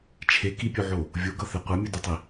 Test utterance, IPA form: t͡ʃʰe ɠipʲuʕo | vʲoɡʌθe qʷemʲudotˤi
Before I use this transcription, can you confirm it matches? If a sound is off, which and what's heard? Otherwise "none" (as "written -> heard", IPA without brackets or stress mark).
ɠ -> k